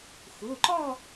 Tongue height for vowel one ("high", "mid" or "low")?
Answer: high